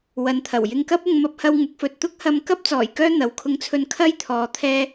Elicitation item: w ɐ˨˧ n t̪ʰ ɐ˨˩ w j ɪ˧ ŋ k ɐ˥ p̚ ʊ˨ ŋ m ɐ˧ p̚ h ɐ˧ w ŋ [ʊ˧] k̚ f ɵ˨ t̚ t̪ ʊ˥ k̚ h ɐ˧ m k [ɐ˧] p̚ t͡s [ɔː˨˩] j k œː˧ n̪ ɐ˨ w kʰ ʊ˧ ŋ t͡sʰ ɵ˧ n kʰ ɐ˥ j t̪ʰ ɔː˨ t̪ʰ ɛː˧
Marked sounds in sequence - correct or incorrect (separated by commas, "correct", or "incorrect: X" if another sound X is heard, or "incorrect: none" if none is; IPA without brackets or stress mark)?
incorrect: ʊ˨˥, incorrect: ɐ˥, correct